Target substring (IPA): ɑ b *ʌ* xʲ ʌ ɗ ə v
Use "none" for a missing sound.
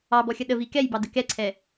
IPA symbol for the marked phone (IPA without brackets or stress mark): ɔ